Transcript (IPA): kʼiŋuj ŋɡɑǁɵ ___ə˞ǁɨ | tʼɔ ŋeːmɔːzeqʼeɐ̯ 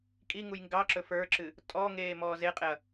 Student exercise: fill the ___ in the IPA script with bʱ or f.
f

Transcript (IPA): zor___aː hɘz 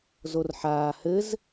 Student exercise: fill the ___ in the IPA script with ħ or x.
ħ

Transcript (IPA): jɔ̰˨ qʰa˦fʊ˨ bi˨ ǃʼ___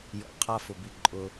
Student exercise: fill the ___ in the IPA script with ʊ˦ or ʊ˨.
ʊ˦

